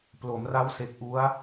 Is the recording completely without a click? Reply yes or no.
yes